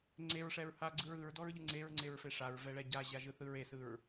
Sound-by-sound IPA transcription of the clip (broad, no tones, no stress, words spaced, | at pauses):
ŋ͡ǀeɹʂɛɹ haɡ͡ǀɯɹ ɯɹdɔɹʎɯ ŋ͡ǀeɹŋ͡ǀeɹfe ʂaɹvɛɭɛ ɟaʑaʒɯθɯɹ esɯɹ